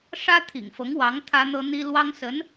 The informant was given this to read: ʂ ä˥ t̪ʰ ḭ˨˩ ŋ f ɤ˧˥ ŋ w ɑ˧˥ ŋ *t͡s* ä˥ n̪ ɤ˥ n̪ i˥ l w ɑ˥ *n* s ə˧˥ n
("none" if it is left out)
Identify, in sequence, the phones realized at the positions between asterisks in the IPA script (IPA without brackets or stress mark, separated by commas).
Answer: t̪ʰ, ŋ